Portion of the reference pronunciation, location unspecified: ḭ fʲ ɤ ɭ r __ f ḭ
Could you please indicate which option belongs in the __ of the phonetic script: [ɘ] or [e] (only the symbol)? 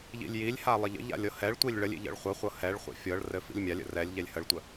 ɘ